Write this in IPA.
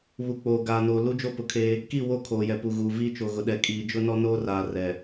β u˨ k͡p oː˨ ɡ aː˨ n oː˨ l u˦ d͡ʒ o˦ p ʊ˨ kʰ eː˦ | k i˦˨ w o˦ kʰ oː˨ j ɛ˨ p u˨ ɣ uː˨ v iː˦ t͡ʃ o˨ ɣ ʊ˨ ɗ ɛ˨ kʼ iː˨ d͡ʒ ʊ˦ n ɔ˦ n oː˦ r aː˨ r ɛ˨

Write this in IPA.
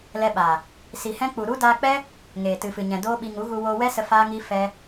l ɛ˧ ɓ aː˨ | s i˨ h ɛ̃˧ k͡p u˨ ɾ u˦ d aː˧ k͡p ɛ˦ | ŋ eː˨ t ɨ˨ f ɨ˨ ɲ ɛ̃˨ d oː˦ ɓ i˧ ŋ u˨˦ ɣ u˧ w oː˧ w ɛ˦ s ə˧ f aː˦ ŋ i˦ f ɛ˦

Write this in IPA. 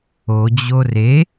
o d͡ʑ o r e

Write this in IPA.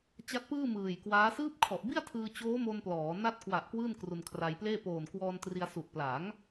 t͡ɕ a˦˥ t̚ p ɯː˥˩ m ɯː˨˩ j k w aː˦˥ s ɯː˦˥ p̚ kʰ ɔ˨˩ ʔ b i˥˩ a̯ tʰ ɯː˧ t͡ɕ oː˦˥ m o˧ n p l ɔː˩˦ n a˦˥ t̚ k w a˨˩ ʔ k w ɯː˥˩ n k r u˧ n kʰ r a˧ j p l eː˥˩ p oː˨˩ n k w ɔː˧ n t r i˧ a̯ s u˨˩ ʔ p l a˩˦ ŋ

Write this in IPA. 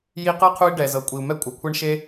j i˧ q ɤ˦ qʰ u˦ i̯ ɖ ɛ˨ z ɤ˨ kʷʼ i˨ u̯ m ɛ˦ kʷʼ a˨ kʷʰ ɛ˦ ɳ ʃ e˦

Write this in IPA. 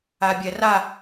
a bʲ ɛ r a

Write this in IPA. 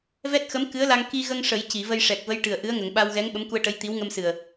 v ɛ˦˥ t̚ x ə˧˥ m k ɨ˧˥ ə̯ l a˧ ŋ k i˧ ɣ ə˧ ŋ ʂ ə˨˩˦ j c i˨˩˨ v ə˧ j ʂ ɛ˨˩ k̚ v ə˧˥ j ʈ ɨ˨˩ ə̯ ʔ ɨ˧˥ ə̯ ŋ ə˨˩˨ ŋ ɓ a˧ w ɣ ɛ˧˥ ŋ ɓ ə˧˥ m k u˧ ə̯ ʈ ə˧˥ j t̪ i˧˥ w ŋ ə˧ m s ɨ˨˩ ə̯

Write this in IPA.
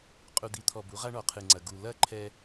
qʼ u˨ d̪ i˨ t̪ʰ ɔ˨ b u˨˦ ʁ a˦ ɳ ɔ˨ qʰ ɨ˨ ŋ͡ǀ ɐ˨ ɡ u˨ l ɐ˦˨ ǃʰ ɛ˦

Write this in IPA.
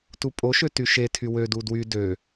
t u pʼ o ʃ ø t y ʃ e tʰ y w ø d u d w y d ø

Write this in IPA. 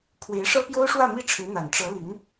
pʰ w e˧˥ ɪ̯ ʂ ɤ˥ p j o˥ ʊ̯ ʂ w ä˥˧ m i˥˩ ʈ͡ʂʰ ɻ̩˧˥ n̪ a˨˩ n ʈ͡ʂ ɤ˧˥ l y˧˥ n

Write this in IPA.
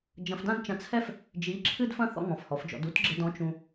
d͡ʒ ɐ̃˧ f d ã˥ d t͡ʃ ɐ̃˧ t͡sʰ ɛ˥ f | d͡ʒ i˨˥ ǁʰ ɨ˥ d f ɐ̃˥ θ ɔ̰˧ ŋ ɔ̃˩˧ f h ɔ˩˧ f d͡ʒ ɔ̰˩˧ d u˥ t ɡ͡ǁ ɘ˧ d ɔ̃˨˥ t͡ʃ ũ˧

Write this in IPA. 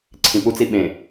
ǀʰ ĩ p u t͡s i ɓ ẽ

